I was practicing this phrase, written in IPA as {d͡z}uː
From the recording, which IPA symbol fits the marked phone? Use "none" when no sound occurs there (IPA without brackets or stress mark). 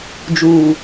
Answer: d͡ʒ